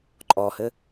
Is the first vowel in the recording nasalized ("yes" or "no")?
no